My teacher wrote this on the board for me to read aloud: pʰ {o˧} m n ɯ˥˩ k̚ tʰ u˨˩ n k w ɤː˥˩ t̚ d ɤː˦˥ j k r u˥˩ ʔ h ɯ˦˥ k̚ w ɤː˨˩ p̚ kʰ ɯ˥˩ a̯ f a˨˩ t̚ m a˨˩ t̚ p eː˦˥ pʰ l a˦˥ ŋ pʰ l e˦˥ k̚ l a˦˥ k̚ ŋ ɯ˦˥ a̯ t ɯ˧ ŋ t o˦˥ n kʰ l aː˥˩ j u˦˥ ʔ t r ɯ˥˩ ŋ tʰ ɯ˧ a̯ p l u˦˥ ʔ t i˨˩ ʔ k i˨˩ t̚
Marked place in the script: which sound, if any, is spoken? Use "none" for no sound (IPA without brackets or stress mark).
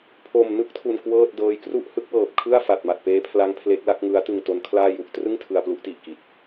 o˨˩